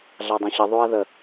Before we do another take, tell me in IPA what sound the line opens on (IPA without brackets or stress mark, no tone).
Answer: ɮ